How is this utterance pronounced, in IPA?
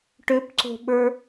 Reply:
ʈ ʏ p ǀ o̤ ɓ ə˞

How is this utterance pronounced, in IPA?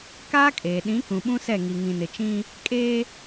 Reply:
k aː˦ kʼ eː˨ ɗ ĩ˨˦ k ũ˨ ɓ ũ˦ s ɛ˦˨ ŋ i˨ ŋ ĩ˨ n ɪ˨ t͡ʃ ĩ˦ | kʼ eː˦

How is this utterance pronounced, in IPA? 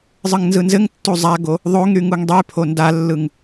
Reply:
zˤ ɯ ŋ n z ɯ n z ɘ ŋ tː u zˤ a ɡ o | ðˤ o ŋ ɾ y ŋ u ŋ dˤ y pʰ o n d a lː ɯ ŋ

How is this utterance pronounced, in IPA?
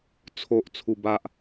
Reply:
t͡sʰ o˨ ʔ t͡sʰ u˧ b a˦ ʔ

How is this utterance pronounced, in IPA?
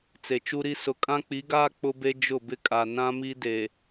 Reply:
t͡s e˨ t͡ʃ u˦ ɾ i˦ s ʊ˨ kʼ ã˦ k͡p i˨˦ ɡ aː˦ k͡p ʊ˦ b e˦ d͡ʒ ʊ˦˨ b ɪ˦ kʼ a˨ n ã˦ m i˦ d e˨

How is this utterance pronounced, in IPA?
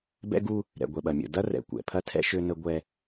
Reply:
b ɛ̰˦ ɡ u˦ | ɾ ɛ̰˨ ɡʷ ɛ˨ ɓ ɐ˨ mʲ ə̰˨ d ɐ˦ r ɛ̰˨ kʷ ɛ̰˨ pʰ ɐ˦ tʰ ɛ̰˦ ʃ ø˦ n ə˦ ɡʷ ɛ˦

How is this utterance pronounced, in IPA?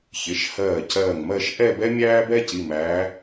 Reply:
ç ɪ˩˧˩ ʃ h ɜː˧˩ c ɜː˧˩ ŋ m ɜ˥˧ ʃ ʔ ɛ˥˧ b ɛ˥ mʲ æː˥ b ɛ˥ c i˩˧˩ m æː˨˦

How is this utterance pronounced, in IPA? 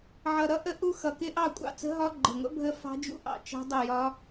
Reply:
ʕ ʌ˨˩ ɾ ʌ˦˥ ʔ ə˦˥ ʔ u˦˥ x ʌ˨˩ k ɪ˦˥ ʔ ɑ˥˨ kʷʼ ɑ̰˥˨ t͡s ə̤˦˥ ɦ ɒ˦˥ ɡ͡ǃ ə˨˩ ŋʷ ə̰˦˥ bʱ ə˦˥ f ɑ̤˦˥ d͡ʒ ṵ˦˥ ʔ ɑ̰˨˩ t͡ʃ ɑ̤˦˥ dˤ ə˥˨ j ɒ˦˥

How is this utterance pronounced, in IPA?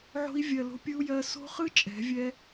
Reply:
ʕ o̤˧ i̯ vʲ ɜ˨ l o̤˧ pʲ ɯ˧ u̯ j ɜ˧ s o̤˦ χ ɯ˦ t͡ʃʼ ɛ̤˨˦ vʲ ɛ˦

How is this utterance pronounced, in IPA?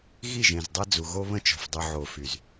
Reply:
ɣ i˦˨ ʒ ẽ˨ z dˤ ɐ˦ d͡z u˨ ɣ o˦ β ə̃˦ t͡ʃ ɔ̤˨ f dˤ ʏ˨ ʕ o˨ f y˨ z

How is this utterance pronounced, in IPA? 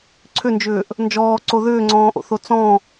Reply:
ǀʰ ʏ n d͡ʒ ʏː ʔ | n d͡ʒ ɔː ǀ o ð ʏː ŋ͡ǀ ɔ̃ː ʔ o̰ θ o t͡s ɔ̃

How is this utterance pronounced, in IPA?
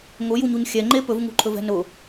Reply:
ŋ ʊ j u ɲ u ɲ xʲ ɛ ŋ͡ǃ e p ɵ v ŋ ṳ ǃʰ ɵ v ɛ̤ n ʊ

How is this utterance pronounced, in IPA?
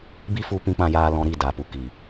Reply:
b i˦ f u˧ p ĩ˧ k͡p ã˧ j aː˧ l ɔ̃˧ ɾ i˦˨ d a˨ p u˨ k i˨

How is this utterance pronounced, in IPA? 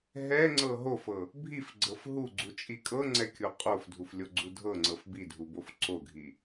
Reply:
ɦ ɛ ŋ͡ǀ ɤ ɦ o f ɤ | bʱ i f ɡ͡ǀ ɤ f ɦ u ɡ͡ǀ u t͡ʃʼ i kʼ ɤ ŋ͡ǀ ɛ kʲ o qʼ o f dʱ u f lʲ o ɡ͡ǀ u dʱ ɤ ŋ͡ǀ ɤ f b i dʱ u b o f ǀ o ɡʱ i

